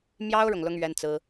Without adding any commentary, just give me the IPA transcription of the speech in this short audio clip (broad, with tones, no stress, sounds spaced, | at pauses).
m j ɑ˥ ʊ̯ ɻ ʊ˨ ŋ l ʊ˥ ŋ ɥ ɛ˥ n t͡s ɹ̩˥